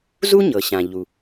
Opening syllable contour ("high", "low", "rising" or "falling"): high